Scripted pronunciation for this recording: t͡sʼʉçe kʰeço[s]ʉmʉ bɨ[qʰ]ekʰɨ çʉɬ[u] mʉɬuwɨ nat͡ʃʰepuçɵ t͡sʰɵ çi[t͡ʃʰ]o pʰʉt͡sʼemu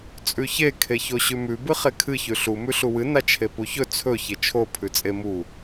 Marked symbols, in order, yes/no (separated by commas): no, no, yes, yes